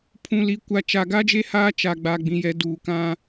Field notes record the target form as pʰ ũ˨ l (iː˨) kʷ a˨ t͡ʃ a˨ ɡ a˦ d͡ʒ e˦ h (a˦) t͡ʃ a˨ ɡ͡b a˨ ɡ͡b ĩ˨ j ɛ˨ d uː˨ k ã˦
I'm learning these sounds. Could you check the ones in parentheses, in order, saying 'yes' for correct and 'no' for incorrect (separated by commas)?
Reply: no, no